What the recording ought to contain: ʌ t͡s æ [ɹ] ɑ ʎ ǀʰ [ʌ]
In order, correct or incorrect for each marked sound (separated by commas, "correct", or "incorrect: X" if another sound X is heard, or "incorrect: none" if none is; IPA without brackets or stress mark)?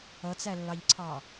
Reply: incorrect: lː, incorrect: ɑ